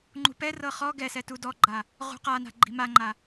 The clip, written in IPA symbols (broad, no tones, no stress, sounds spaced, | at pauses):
ŋ͡ǃ ṳ p ɛ r ɤ χ ɔ ɡ ɛ s ɛ t u d ɔ ɡ͡ǃ a | ʁ ṳ q a n a̤ ɡ͡ǃ i̤ m a ŋ͡ǃ a